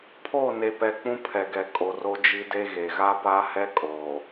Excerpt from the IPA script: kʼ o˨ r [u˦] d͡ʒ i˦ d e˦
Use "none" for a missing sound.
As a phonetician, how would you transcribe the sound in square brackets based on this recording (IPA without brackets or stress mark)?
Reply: o˦